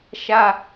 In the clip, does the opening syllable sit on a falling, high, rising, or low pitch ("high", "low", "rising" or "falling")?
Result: high